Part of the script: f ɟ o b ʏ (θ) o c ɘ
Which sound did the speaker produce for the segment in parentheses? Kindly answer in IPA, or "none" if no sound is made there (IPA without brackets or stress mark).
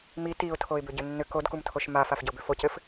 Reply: f